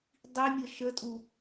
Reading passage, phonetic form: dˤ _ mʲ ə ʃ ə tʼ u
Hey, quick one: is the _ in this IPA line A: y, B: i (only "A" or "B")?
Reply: B